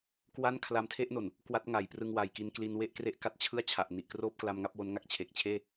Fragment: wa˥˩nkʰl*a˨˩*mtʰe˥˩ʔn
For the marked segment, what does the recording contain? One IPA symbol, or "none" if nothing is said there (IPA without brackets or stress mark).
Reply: a˧